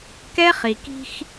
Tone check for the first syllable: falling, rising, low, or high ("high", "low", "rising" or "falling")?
high